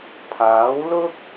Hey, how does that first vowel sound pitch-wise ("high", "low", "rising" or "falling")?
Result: rising